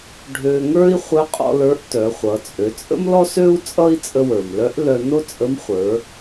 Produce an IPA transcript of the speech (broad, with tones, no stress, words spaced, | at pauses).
ɖʱø˧ŋə˞˥i̯ χʷœ˧˥qʼɔ̰˧ lə˞˧˥ʔtœ˩˧χʷʌ˩˧ t͡sʼø˩˧t͡sʼə̰˥m lɔ˥sø˥u̯ t͡sʼʌ˥i̯t͡sʼə˧ wə˞˩mlœ˧˥ʔ lœ˧no˥t͡sʼə˧˥m χʷə˞˩˧